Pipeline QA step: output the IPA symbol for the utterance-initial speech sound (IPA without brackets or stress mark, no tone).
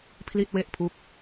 pʰ